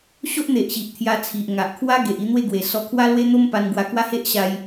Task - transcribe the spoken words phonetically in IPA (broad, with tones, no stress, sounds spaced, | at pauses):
ɕ o˦ ʔ n̪ e˨ ʔ ɕ i˨ ʔ t̪ʰ j a˧ t͡sʰ i˨ ʔ ŋ a˨ ʔ kʰ w a˦ ɡ e˨ ʔ i˥˧ n̪ w e˥˧ ɡ w e˨˩ s ɔ˧ kʰ w a˦ l w e˦ n̪ o˦ m p a˧ n ɡ w a˧ k w a˦ h e˦ ʔ ɕ a˧ j